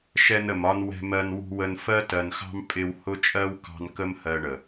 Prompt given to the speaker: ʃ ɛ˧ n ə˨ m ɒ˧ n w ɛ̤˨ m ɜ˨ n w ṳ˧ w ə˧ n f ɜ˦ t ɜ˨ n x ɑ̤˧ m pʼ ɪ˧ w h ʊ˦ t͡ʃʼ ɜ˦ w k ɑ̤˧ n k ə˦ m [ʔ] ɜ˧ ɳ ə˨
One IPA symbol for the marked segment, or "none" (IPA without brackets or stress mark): h